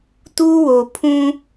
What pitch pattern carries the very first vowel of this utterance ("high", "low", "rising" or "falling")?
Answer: high